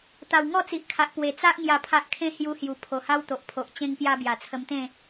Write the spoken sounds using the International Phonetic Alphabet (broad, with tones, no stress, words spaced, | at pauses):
t̪a˨˩w ŋɔ˥˧t͡si˨ʔkʰa˨ʔ pwe˨˩t͡sa˦ʔ ŋja˨˩pʰa˨ʔkʰẽ˧ hju˧hju˨˩ pʰo˨˩ha˦wt̪o˨ʔpʰo˨ʔ t͡ɕẽ˦ŋpja˦ bja˨˩t͡sʰə˧mt̪ẽ˥˧